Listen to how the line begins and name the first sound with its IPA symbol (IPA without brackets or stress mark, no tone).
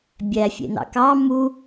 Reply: bʲ